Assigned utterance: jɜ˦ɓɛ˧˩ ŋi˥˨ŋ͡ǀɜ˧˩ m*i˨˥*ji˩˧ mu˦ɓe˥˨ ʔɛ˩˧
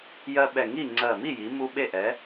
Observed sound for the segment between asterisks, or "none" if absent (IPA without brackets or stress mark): i˥˨